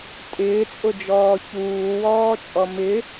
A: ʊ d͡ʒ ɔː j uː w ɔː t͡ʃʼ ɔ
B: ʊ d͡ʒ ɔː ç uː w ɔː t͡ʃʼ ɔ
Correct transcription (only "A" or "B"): B